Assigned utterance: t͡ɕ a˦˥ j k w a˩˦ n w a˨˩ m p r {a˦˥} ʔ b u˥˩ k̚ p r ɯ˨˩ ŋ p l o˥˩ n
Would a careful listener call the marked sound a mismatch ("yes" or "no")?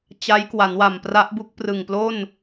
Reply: no